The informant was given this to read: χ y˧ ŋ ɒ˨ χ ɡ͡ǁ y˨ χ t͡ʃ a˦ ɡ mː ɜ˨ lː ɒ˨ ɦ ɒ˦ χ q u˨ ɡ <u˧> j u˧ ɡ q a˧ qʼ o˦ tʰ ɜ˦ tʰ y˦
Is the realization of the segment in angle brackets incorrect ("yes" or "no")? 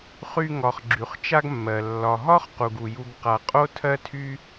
yes